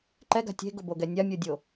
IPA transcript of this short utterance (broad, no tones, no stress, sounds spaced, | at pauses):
ǃ ɛ ɡ a̤ tʲ e̤ ɡ ʊ b o ɡ ɛ nʲ a mʲ o dʲ o